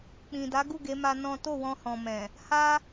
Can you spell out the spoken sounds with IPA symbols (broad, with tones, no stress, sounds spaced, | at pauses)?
k͡p ĩ˨ d a˨˦ ɡ u˦˨ ɡ e˨˦ m a˧ n ɔ̃˦ t o˦˨ w ɔ̃˧ h ɔ̃˨ m ɛ̃˨ | h a˦